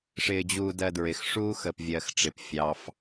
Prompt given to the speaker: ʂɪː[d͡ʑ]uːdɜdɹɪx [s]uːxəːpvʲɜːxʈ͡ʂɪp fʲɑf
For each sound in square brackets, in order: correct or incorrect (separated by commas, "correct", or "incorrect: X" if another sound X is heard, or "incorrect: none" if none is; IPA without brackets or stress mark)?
correct, incorrect: ʂ